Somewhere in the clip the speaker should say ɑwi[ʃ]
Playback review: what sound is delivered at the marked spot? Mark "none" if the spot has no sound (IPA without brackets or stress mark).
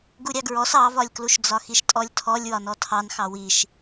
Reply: ʃ